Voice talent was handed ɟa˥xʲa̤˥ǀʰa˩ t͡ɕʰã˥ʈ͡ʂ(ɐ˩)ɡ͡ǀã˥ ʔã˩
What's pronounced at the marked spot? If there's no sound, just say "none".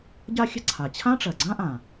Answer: ɐ˩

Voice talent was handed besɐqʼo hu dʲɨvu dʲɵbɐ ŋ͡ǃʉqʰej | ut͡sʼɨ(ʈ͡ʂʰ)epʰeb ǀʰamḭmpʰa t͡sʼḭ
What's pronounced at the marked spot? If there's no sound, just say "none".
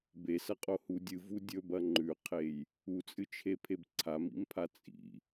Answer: t͡ʃʰ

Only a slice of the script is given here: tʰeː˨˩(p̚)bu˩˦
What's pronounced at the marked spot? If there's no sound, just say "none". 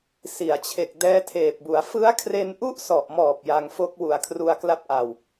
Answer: p̚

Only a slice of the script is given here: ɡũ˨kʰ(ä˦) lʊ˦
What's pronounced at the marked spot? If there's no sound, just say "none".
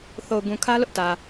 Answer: ä˦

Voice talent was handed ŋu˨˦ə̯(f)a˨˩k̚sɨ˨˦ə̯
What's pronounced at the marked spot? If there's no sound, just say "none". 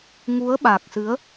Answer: ɓ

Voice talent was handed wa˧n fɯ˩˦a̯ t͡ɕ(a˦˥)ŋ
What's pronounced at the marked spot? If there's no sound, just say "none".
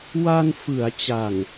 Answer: a˨˩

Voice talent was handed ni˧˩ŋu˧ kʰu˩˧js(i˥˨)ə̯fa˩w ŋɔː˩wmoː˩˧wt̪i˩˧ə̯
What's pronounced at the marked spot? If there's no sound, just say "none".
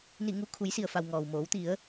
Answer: i˩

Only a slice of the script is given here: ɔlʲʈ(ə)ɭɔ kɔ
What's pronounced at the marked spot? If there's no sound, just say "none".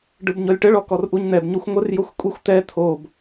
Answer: ə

